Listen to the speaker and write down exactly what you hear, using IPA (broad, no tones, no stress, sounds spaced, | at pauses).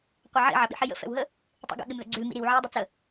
qʷ ɐ ʕ ḭ ʕ ɐ ɓ ḭ ħ i j ə̰ f ɛ̰ w ɦ ə | tˤ ḭ ɡ ə̰ ɠ ɪ m ð ə̰ ɡ͡ǀ ʉ l m ḭ ɾ i w ʕ ɛ j dˤ ə t͡s ə